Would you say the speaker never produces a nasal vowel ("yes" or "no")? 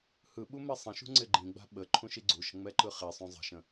no